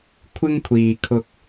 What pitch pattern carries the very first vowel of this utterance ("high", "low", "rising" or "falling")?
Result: high